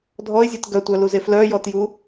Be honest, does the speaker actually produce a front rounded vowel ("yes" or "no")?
yes